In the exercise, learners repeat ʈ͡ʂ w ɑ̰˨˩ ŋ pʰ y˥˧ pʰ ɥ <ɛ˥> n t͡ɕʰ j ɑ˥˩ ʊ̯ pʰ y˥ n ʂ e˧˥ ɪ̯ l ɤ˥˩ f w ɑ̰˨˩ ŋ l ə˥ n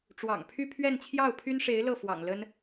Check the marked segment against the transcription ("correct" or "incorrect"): incorrect